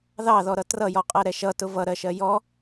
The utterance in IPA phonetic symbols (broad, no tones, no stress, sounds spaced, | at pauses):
ð ɑ ð ɔ ɾ ʌ t r ʌ j ɔ qʼ ɜ ɾ ɛ ʃ ʌ t ʊ v ʌ ɾ ɜ ʃ ɜ j ɔ